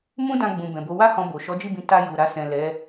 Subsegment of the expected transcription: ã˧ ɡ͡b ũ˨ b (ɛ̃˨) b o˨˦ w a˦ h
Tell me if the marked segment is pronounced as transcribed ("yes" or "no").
yes